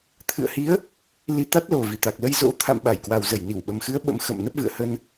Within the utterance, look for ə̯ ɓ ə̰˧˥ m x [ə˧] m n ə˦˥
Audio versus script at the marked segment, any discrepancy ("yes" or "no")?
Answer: yes